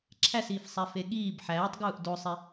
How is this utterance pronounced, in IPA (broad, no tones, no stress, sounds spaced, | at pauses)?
ǁʰ æ s iː f sˤ æ f e ɠ iː b ħ æː tˤ ɡ uː ʔ d o sˤ e